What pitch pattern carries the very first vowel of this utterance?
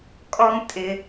high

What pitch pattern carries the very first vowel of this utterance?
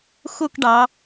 falling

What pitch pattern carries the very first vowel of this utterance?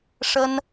high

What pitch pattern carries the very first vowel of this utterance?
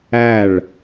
falling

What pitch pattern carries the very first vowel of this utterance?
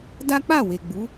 high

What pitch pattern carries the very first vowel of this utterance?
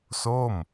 falling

